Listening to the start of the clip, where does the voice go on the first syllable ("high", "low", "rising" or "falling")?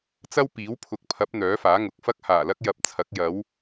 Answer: high